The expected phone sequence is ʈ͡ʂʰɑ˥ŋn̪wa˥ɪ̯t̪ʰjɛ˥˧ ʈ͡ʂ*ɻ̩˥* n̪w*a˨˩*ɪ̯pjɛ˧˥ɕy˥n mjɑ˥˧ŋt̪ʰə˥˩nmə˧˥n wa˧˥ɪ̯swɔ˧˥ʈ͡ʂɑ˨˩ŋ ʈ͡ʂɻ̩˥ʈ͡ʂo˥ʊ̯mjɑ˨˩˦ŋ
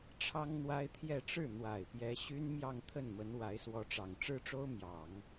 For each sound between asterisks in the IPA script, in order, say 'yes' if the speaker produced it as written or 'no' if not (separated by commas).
no, yes